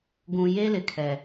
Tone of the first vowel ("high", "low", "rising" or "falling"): low